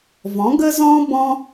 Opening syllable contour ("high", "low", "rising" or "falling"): rising